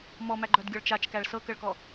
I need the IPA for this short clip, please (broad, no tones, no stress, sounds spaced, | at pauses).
m ɔ m æ ɡ͡ǃ œ d ɡʲ ɔ ɭ t͡ʃ a t͡ʃ k æ ɭ s ɤ k ə ɭ k ɔ